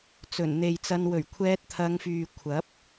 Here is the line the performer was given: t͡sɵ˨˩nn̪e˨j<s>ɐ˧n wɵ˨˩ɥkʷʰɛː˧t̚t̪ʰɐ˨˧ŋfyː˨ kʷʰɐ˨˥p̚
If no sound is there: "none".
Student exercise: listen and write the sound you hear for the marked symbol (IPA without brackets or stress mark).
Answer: t͡s